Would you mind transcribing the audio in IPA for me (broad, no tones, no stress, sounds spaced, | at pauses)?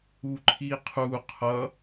u ǃʰ i qʰ u qʰ ʌ